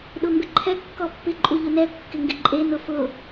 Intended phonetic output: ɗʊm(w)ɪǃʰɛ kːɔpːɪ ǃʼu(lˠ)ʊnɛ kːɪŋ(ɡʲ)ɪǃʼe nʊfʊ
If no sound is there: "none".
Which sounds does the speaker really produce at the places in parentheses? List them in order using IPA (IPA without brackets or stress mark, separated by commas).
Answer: b, ʎ, ɡ